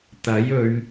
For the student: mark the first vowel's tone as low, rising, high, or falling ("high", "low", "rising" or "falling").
rising